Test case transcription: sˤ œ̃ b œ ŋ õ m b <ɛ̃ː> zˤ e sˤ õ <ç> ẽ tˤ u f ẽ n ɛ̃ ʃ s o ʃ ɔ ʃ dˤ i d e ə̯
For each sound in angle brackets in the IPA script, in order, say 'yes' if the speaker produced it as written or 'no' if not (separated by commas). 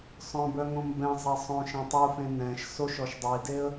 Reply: no, no